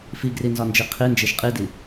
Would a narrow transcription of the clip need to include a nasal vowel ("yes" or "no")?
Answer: no